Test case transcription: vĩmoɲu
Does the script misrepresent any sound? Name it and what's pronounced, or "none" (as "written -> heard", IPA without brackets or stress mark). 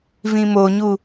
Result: none